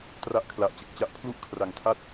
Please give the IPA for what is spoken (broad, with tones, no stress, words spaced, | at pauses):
tra˥˩ʔkʰla˨˩ʔt͡ɕɯ˨˩k̚t͡ɕa˦˥ʔ pʰlu˥˩ʔkʰra˨˩ŋtʰa˥˩t̚